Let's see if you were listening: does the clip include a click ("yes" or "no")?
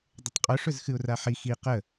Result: no